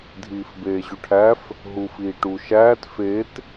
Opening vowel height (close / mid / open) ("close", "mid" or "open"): close